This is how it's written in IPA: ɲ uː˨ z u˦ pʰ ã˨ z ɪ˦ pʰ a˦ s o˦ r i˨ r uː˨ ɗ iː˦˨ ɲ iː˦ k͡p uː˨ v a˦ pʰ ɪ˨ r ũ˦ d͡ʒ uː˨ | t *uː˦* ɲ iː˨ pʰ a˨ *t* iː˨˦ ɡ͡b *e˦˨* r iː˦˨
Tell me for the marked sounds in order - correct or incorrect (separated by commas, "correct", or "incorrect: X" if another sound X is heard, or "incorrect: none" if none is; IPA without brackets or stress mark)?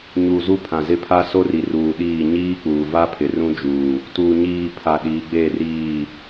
incorrect: uː˨, incorrect: ɗ, correct